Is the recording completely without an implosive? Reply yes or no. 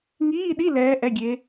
no